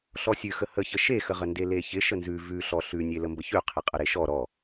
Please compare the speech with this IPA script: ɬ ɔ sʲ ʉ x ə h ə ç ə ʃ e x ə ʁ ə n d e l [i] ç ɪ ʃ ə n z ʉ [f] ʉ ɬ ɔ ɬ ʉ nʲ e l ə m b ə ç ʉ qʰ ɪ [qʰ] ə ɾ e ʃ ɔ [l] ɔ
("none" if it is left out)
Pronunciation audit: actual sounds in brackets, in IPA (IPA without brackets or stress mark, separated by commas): e, v, qʼ, ɾ